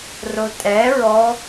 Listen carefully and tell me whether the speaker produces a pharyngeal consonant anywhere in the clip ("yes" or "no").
no